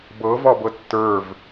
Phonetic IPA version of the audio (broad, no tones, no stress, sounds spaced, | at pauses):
b ɤ v ɒ b ɤ tː ə˞ v